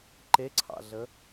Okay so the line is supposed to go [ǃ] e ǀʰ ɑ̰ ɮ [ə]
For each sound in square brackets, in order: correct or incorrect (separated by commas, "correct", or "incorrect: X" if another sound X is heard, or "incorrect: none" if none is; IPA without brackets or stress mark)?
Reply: correct, correct